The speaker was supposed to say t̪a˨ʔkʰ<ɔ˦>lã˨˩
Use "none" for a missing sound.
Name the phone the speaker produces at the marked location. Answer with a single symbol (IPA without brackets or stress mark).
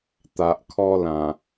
ɔ˦